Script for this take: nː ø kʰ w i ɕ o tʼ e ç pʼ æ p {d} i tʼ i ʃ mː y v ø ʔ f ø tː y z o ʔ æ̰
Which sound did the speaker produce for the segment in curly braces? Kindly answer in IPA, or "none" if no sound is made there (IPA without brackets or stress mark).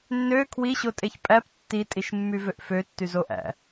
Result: tː